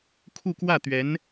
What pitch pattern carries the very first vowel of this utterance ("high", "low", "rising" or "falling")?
falling